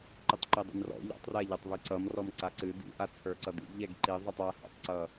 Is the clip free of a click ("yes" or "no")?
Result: no